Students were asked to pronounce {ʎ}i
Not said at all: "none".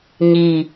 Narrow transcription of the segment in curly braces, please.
ɲ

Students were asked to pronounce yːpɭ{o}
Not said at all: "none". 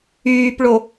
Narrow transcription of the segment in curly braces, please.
o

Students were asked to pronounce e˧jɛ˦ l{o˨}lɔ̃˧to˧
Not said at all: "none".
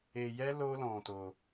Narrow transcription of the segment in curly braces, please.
o˦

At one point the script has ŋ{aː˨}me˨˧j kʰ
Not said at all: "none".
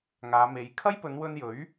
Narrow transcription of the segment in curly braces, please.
aː˨˧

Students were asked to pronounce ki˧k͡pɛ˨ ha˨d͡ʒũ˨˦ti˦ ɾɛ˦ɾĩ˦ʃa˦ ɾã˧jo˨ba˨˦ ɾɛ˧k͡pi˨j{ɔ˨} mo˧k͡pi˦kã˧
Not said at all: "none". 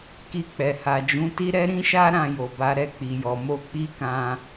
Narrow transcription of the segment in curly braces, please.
ɔ˨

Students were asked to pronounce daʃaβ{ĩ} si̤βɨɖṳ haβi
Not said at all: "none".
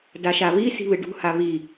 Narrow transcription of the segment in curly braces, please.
i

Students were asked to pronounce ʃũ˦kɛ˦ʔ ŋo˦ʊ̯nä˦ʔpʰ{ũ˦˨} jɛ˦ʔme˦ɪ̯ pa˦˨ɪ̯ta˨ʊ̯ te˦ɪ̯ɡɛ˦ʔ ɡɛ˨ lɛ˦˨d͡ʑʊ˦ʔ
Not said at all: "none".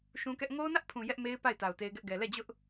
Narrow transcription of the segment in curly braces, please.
ũ˨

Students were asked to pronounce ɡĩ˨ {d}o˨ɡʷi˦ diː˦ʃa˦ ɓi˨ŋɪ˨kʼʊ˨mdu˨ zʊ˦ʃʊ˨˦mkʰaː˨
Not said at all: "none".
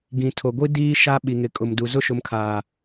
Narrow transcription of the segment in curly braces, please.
tʰ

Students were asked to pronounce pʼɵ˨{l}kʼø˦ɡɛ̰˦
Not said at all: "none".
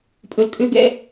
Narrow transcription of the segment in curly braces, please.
l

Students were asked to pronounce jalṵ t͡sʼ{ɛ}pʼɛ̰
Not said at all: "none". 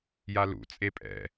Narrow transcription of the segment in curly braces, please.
e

